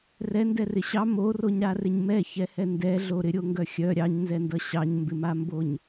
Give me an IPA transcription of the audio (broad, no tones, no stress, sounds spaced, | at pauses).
r ɛ n d ɛ r ɪ ɕ ɑ m o r o ɲ ɾ a r ɪ ɲ m ɛ ç ɛ h ɛ n d ɛ ɮ o ɾ ɪ ɾʲ o ŋ ɡ œ xʲ œ ɾʲ ɑ ɲ n z ɛ n d ʌ ɕ ɑ ɲ m b ɪ m a m b o ɲ